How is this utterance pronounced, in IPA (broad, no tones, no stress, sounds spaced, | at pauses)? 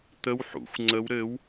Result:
t̪ ə w ħ ṵ xʷ ŋ͡ǀ ə w ɾ ɘ w